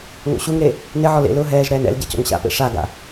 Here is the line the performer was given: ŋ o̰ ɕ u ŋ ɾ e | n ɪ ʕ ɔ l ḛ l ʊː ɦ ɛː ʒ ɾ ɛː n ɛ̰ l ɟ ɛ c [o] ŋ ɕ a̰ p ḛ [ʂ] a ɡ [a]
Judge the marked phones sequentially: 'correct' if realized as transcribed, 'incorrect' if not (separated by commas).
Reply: incorrect, correct, incorrect